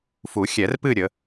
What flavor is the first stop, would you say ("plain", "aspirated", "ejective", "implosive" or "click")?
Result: plain